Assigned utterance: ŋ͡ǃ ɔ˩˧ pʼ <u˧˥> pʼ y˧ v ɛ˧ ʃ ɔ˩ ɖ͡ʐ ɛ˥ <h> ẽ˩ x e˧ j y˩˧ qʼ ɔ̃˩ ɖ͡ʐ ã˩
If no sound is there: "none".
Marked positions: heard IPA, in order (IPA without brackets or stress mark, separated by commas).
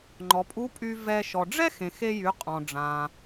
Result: u˧˥, x